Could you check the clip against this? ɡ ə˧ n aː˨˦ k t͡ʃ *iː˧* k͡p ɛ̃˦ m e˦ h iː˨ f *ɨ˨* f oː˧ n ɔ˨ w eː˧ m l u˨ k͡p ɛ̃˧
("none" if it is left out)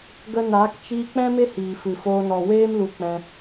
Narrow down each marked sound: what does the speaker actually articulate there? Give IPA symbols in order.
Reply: iː˧, ɨ˨

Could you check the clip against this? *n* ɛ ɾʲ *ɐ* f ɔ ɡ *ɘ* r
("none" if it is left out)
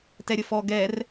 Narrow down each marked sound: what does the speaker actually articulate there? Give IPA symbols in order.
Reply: t, ə, ɛ

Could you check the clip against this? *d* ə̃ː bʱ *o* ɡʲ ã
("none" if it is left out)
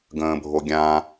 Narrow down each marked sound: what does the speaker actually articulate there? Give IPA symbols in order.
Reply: ɡ, o

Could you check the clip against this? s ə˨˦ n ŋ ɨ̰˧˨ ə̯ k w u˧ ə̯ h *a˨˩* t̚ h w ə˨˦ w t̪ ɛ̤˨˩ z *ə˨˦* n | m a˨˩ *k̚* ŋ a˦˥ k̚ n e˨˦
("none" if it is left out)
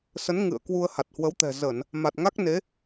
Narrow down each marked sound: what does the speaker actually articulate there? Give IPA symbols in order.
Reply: a˨˩, ə˧˩˨, t̚

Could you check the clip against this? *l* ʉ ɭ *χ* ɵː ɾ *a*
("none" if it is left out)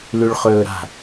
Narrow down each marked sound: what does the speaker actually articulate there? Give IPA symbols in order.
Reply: l, χ, a̤

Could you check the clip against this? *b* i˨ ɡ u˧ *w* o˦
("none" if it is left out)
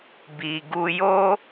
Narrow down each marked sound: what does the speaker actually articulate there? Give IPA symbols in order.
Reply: b, j

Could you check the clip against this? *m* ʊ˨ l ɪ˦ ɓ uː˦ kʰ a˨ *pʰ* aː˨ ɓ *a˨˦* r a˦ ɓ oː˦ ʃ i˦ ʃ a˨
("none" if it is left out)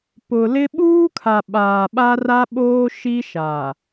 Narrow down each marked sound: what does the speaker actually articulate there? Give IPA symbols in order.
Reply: p, ɓ, a˦

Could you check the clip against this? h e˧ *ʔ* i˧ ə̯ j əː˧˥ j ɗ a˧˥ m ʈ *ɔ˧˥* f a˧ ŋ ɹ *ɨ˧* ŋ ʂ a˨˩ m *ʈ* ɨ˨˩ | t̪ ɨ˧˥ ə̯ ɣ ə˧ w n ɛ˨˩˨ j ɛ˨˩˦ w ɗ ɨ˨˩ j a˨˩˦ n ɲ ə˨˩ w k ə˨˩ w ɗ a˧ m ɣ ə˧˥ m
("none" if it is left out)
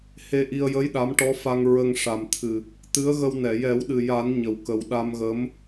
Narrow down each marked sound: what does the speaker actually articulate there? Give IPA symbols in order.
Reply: ʔ, ɔ˧˥, ə˧, t̪ʰ

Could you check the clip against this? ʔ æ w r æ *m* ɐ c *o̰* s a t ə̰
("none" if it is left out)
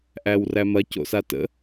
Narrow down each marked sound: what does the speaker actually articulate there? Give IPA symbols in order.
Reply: m, o̰

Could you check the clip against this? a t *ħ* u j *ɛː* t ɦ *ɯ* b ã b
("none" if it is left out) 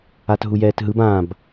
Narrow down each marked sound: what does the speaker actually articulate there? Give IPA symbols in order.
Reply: ɦ, ɛː, ɯ

